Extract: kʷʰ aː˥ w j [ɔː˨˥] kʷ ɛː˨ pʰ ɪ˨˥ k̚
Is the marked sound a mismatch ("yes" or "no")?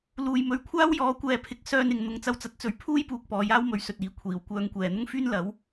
no